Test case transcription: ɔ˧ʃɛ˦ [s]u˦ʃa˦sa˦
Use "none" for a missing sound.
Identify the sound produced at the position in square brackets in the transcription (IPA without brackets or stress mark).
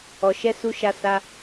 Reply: s